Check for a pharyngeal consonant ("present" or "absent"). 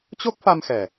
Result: absent